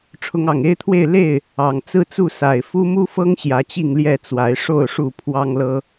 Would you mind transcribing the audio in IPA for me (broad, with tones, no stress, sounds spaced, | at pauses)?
ʈ͡ʂʰ ʊ˨˦ ŋ ɑ˨˩ ŋ e˦ ɪ̯ t̪ʰ w e˥˨ ɪ̯ l e˥˨ ɪ̯ | ɑ˨˩ ŋ t͡s ɹ̩˦ t͡s u˥˨ s a˨˩ ɪ̯ f u˦ m u˦ f ɤ˦ ŋ ɕ j ä˨˦ t͡ɕ i˥˨ ŋ l j ɛ˥˨ t͡s w a˨˦ ɪ̯ ʂ o˥˨ ʊ̯ ʂ u˥˨ pʰ w ɑ˦ ŋ l ɤ˦